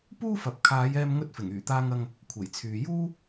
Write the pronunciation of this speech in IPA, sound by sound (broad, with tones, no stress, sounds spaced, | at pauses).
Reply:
p uː˥ f ɐ˨ p̚ kʰ aː˨˧ j ɛː˧ m ŋ ɵ˧ t̚ f ɪ˨˩ ŋ yː˨˩ t̪ aː˧ ŋ ɐ˧ ŋ | kʷʰ e˨˩ j t͡sʰ yː˨ j uː˥